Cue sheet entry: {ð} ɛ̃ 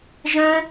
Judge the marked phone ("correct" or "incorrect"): incorrect